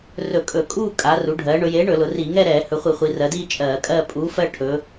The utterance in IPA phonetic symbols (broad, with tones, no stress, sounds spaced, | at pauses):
r ɵ˧˩˧ kʼ ɵ˧˩˧ kʼ uː˥˧ kʼ a˩˧ r u˩˧ ɖʱ ɜː˩˧ ɳ ɵ˩˧ j eː˨˥ ɳ ɵ˧˩˧ l ʊ˩˧ r iː˧˩˧ ŋ ɛ˥˧ ɾ ɛː˧˩˧ h ɵ˩˧ χʷ i˧˩˧ χʷ i˩˧ r ɜ˩˧ d iː˥˧ t͡ʃʼ ɜː˧˩˧ kʼ ɜ˥˧ pʼ uː˨˥ f ɜ˥˧ ʈʰ ɵ˩˧